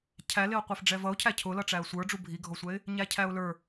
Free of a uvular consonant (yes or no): no